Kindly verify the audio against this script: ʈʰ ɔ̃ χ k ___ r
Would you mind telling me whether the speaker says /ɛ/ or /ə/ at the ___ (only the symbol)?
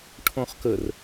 ə